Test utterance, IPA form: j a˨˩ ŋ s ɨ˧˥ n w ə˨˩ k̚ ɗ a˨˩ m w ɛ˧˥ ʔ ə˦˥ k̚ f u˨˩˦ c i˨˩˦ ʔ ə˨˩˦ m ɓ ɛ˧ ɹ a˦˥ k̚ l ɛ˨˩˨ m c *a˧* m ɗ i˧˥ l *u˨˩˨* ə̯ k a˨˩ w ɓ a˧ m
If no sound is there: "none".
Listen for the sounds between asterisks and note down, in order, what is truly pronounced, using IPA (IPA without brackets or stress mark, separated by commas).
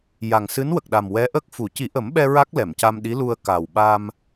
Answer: a˧, u˧